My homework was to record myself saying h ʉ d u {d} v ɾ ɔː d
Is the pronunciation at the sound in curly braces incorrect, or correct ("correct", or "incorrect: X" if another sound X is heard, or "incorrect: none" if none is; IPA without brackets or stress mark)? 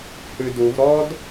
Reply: incorrect: none